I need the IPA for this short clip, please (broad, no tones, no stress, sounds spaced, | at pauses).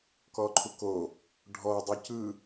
k ɔ ǃʰ u k o | ɖʱ ɔ dˤ u c ɯ